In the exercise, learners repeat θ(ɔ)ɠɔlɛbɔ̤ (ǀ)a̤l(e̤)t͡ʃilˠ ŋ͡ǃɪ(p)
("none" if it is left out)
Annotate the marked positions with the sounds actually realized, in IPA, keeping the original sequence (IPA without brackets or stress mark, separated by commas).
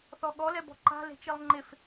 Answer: ɔ, ǃ, e̤, f